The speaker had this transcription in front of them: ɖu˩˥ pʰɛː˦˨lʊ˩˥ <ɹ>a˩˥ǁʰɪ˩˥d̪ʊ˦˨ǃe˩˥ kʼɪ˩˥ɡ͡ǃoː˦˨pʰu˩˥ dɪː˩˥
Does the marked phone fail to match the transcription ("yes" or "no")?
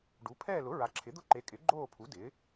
no